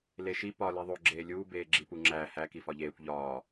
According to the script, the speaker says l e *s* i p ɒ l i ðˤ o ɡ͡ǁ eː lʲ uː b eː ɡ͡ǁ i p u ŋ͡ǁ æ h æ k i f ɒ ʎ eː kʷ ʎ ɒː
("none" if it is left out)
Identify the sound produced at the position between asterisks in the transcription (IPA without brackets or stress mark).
ʃ